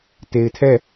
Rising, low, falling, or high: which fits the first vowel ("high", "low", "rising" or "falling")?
low